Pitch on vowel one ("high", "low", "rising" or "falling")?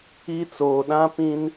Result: high